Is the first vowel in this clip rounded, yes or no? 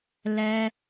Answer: no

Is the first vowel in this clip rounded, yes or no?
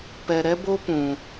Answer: no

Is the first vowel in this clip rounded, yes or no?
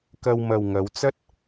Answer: no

